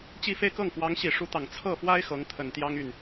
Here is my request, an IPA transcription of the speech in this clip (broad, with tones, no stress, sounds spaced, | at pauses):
t͡ɕ i˥˧ f e˥˧ ɪ̯ k ɤ˥˩ ŋ f w ɑ˧˥ ŋ ɕ i˨˩ ʂ u˧˥ t̪ ɑ˨˩ ŋ t͡sʰ ɤ˥˩ f w a˥ ɪ̯ x ɤ˧˥ ŋ t̪ʰ ə˨˩ n t̪ j ɑ˥ ŋ y˥˩ n